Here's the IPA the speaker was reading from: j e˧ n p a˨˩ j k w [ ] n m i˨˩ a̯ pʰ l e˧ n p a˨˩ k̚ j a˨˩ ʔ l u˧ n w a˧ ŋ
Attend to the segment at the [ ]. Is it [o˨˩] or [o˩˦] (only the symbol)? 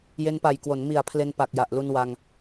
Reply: o˩˦